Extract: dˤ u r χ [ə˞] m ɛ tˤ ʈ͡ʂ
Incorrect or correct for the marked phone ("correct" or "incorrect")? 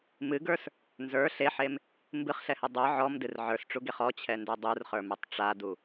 correct